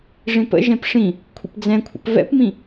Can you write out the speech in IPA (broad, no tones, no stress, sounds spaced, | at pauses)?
ʐ ĩ p ə̰ ʒ ɛ̃ p ʂ ĩ | kʷʰ ə̰ p d͡z ɛ̃ kʷʰ ə̰ p v ɛ̰ p m ĩ